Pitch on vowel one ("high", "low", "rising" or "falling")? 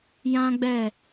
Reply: high